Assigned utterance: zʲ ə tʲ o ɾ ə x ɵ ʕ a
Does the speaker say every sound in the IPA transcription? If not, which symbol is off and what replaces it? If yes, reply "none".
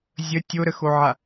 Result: ɵ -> o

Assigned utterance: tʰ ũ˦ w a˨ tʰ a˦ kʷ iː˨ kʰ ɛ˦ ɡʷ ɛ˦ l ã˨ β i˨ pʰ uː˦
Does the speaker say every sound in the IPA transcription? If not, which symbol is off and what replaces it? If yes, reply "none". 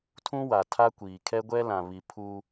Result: none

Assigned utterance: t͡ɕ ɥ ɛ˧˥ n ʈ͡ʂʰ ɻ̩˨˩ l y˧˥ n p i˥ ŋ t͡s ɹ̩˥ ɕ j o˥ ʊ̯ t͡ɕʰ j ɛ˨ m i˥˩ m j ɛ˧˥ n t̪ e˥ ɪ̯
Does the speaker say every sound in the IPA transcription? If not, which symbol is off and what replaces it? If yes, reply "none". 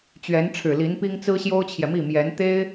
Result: y˧˥ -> i˧˥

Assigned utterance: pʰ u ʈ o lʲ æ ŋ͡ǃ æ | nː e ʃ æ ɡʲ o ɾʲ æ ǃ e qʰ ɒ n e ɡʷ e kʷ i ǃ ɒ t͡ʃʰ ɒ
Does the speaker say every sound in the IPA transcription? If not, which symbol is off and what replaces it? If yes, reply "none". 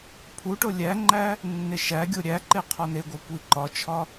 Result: none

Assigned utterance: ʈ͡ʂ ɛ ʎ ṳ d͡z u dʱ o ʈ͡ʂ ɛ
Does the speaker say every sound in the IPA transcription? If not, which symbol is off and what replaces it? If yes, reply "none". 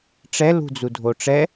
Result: ʎ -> l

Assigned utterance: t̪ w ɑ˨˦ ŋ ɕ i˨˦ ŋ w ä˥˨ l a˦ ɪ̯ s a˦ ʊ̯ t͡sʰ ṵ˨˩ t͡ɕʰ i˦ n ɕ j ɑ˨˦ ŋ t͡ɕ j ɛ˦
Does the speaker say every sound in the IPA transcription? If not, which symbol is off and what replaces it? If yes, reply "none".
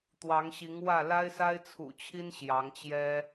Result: ʊ̯ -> ɪ̯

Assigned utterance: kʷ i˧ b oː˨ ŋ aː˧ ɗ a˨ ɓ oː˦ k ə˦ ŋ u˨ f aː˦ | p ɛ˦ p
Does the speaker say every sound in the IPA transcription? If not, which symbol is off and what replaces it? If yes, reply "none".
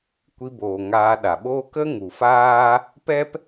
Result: none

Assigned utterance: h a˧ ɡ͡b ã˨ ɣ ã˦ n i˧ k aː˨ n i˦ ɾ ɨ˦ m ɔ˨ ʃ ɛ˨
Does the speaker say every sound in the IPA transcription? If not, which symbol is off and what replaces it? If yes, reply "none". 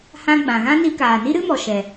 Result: a˧ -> ã˧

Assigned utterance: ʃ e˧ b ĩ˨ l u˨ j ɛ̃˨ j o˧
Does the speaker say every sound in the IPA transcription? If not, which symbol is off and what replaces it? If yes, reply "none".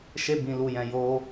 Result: none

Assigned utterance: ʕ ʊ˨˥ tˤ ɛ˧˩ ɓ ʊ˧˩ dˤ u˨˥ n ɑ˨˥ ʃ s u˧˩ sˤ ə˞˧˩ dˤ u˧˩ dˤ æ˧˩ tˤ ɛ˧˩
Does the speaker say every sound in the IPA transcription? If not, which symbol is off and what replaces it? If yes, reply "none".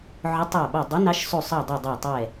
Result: none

